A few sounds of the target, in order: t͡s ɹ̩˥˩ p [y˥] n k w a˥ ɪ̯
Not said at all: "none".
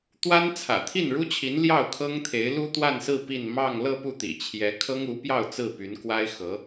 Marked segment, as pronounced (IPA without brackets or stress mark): y˧˥